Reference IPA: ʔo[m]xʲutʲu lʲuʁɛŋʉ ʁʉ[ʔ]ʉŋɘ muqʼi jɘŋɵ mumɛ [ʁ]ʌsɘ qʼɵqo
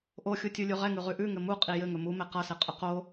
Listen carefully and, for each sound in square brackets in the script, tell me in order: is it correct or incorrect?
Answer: incorrect: none, correct, incorrect: q

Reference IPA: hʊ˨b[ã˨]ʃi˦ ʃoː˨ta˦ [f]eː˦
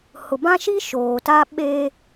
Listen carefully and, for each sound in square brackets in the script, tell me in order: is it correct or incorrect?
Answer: incorrect: ã˦, incorrect: ɓ

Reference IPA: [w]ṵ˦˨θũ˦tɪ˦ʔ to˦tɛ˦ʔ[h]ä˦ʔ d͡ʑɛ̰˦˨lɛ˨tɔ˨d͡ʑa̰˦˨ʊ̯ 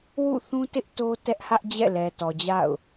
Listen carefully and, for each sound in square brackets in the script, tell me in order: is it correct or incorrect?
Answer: correct, correct

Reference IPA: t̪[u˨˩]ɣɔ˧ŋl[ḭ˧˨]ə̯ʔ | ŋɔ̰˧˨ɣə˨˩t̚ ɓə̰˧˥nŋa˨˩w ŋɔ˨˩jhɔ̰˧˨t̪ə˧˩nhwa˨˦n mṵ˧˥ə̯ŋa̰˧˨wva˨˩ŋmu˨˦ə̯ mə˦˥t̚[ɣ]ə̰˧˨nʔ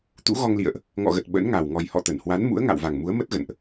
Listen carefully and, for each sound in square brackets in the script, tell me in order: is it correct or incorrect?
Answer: incorrect: ṵ˧˥, correct, correct

